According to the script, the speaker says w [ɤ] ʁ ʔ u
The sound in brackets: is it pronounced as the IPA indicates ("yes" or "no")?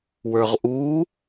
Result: no